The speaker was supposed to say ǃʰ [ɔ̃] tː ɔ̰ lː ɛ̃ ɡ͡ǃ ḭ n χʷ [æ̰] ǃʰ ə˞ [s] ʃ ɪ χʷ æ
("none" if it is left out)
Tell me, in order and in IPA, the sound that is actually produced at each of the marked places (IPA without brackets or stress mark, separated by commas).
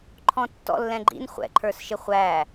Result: ɔ̃, ɛ̰, s